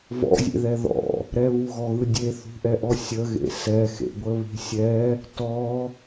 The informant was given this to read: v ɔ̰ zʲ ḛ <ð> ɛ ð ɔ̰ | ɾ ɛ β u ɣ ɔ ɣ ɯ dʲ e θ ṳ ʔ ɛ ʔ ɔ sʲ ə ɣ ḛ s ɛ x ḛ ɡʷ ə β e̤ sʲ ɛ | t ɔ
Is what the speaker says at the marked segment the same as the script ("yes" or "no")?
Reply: yes